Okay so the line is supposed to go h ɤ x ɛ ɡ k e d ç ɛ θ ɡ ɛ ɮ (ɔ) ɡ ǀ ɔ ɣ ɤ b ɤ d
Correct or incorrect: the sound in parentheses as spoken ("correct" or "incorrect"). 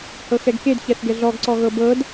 correct